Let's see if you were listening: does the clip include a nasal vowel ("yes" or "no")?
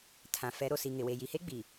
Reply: yes